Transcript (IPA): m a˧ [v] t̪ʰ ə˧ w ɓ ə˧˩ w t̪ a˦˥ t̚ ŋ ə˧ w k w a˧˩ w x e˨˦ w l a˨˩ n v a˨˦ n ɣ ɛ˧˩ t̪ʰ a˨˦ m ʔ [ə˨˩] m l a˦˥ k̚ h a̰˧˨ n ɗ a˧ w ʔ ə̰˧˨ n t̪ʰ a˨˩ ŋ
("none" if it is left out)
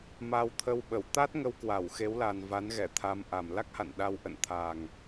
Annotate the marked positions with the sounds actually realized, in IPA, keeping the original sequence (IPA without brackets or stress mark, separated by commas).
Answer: w, a˨˩